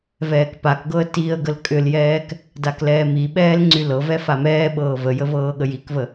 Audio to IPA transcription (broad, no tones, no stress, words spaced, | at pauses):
vɛːkpakɡɤə̯ tiə̯ ɡəlkʼʏljɛːk | daklɛːmiɓɛːl ŋ͡ǀylɤvɛ famɛːɓɤː vəjə vɤːɠəjikvə